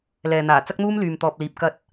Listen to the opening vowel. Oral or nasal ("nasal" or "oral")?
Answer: oral